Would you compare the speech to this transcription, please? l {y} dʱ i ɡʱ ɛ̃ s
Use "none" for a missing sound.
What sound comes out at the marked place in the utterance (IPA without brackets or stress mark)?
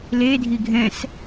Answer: e